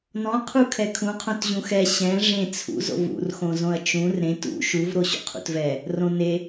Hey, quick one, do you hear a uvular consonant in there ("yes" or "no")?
yes